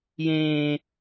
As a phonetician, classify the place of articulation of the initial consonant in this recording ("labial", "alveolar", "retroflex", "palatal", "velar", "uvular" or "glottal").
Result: palatal